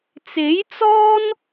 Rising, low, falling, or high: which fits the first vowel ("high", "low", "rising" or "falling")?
rising